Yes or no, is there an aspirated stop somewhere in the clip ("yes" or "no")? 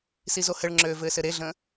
no